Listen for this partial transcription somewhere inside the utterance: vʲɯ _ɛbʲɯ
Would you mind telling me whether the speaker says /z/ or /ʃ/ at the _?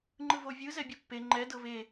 z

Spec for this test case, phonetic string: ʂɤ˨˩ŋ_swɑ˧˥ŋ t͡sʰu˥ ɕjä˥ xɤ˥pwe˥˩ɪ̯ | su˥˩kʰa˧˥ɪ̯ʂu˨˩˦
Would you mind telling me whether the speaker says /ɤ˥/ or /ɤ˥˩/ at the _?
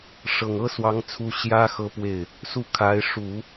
ɤ˥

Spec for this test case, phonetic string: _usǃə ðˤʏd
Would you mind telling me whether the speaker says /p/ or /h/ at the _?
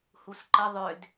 h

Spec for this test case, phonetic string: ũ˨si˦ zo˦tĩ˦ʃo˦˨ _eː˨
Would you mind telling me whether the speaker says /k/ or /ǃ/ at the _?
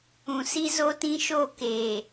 k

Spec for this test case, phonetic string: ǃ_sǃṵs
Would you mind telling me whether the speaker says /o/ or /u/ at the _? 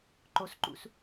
o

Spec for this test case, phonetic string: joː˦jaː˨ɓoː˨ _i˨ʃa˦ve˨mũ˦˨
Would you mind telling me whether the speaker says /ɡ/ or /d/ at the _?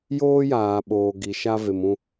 ɡ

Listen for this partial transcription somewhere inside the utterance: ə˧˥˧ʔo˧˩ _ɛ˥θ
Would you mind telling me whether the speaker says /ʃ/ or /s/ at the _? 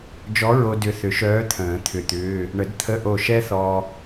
ʃ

